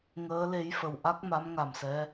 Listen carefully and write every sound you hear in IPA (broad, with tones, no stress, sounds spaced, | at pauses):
ŋ əː˧˥ l e˧˥ j f ə˨˩ w ʔ a˦˥ k̚ m a˧˥ m ŋ a˨˩ m s ɛ˧˥